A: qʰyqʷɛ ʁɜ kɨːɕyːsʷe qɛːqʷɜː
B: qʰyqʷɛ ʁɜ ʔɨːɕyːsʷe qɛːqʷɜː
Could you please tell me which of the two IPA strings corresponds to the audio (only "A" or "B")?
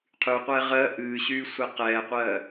B